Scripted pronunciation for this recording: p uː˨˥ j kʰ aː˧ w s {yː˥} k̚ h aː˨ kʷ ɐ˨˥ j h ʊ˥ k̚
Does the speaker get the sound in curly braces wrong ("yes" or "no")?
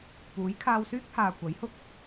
no